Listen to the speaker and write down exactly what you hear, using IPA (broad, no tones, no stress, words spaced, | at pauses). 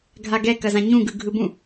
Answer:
ɡʱaɡɛ kɐzãɲũɡɯ ɡʱɯbũ